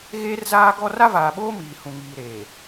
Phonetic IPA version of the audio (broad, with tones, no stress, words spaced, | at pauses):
ɣeː˦rzaː˦ ɡɔ˦ ra˦vaː˨ɓoː˦ miː˨hũ˨ŋiː˨ɾeː˨